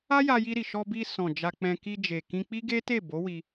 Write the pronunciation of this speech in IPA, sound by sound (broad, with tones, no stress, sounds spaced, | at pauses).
a˦ j a˧ j i˧ ɾ i˨ ʃ ɔ˧ b i˧ s ɔ̃˨ d͡ʒ a˧ k͡p ɛ̃˧ k i˧ d͡ʒ e˨ k ĩ˧ k͡p i˦ ɡ e˦ t e˦˨ b o˨˦ w i˧